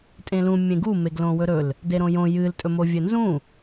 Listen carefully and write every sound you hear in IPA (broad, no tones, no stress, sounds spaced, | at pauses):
tʼ ẽ l ũ mʲ ẽ ɡ u m e ɡ l õ w ɵ ɾ ɵ l | d e ɾ õ j õ j ɨ l tʼ ɵ m o vʲ ɘ n z ũ